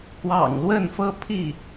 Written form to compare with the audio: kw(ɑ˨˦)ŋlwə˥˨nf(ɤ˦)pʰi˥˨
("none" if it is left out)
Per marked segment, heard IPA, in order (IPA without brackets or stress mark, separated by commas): ɑ̰˨˩, ɤ˦